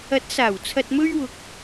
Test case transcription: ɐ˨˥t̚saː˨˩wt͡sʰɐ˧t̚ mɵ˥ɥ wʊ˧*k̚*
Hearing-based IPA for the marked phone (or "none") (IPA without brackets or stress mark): k̚